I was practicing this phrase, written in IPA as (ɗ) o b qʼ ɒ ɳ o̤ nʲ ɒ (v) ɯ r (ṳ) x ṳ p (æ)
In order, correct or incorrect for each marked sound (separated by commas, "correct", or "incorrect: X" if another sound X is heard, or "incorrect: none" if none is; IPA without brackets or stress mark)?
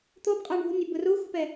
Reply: incorrect: t̪, incorrect: b, incorrect: u, incorrect: ɛ